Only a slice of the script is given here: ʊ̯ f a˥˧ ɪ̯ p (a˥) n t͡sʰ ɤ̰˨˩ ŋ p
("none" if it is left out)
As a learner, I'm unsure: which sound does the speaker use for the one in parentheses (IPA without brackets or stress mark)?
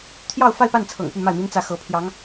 a˥˩